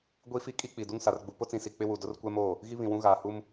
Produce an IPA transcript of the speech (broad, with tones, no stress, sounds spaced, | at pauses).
ɡʷ i˦ f i˦ kʼ i˦ k͡p i˨ d u˦ ŋ s a˨ r ɡ͡b u˨ p ʊ˦ t͡s ĩ˨ s i˨ k͡p ɪ˦ w u˨ d ʊ˦ r kʷ ɛ˦ m oː˦˨ | ɣ i˦ β ĩ˨ w ũ˦ ɣ aː˨ h u˦ m